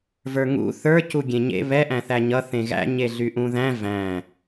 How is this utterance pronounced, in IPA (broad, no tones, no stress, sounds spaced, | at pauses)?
v ə˞ ŋ ṵ θ ə˞ c u ɡʲ ẽ ɲ ḛ β ɛ ʔ æ̃ θ æ ɲ ʌ θ ẽ ɣ æ̰ ɲ e ɮ y ʔ ũ ð æ̃ v æ̃